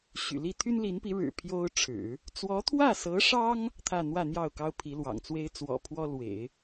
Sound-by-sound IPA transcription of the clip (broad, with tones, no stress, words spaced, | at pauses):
ɕy̰˨˩li˥˩ t̪ʰy˥nli˧˥npi˧˥ ɻɻ̩˨˩ pʰjo˥ʊ̯ʈ͡ʂʰɻ̩˨˩˦ | t͡swɔ˧˥t̪ʰwä˥˩sɤ˧˥ʂɑ˥ŋ | t̪ʰä˥˧n̪wä˥˧n̪jɑ˥˩ʊ̯ kɑ˥ʊ̯pʰi˧˥lwɑ̰˨˩ŋt͡swe˥ɪ̯ t͡swɔ̰˨˩pʰwɔ˥lwḛ˨˩˦ɪ̯